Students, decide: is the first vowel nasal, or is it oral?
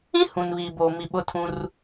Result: nasal